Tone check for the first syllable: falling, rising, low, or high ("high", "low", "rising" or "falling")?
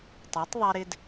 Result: rising